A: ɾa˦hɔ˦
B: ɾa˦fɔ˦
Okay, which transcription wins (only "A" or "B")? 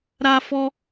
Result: B